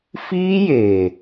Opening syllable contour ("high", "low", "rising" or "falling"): high